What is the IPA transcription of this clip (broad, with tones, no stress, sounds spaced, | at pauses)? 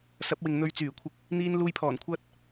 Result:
s ɐ˨˥ p̚ w ɪ˨ ŋ n̪ ɵ˧ ɥ t͡s yː˨˩ kʷʰ ɪ˧ k̚ | n̪ iː˧ n l uː˧ j pʰ ɔː˨˩ n kʷʰ ɐ˥ t̚